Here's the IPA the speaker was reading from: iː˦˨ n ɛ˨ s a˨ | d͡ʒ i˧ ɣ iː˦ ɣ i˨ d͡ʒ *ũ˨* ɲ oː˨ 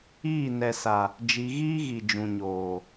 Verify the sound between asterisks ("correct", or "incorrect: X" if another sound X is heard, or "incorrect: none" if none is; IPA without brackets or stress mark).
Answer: correct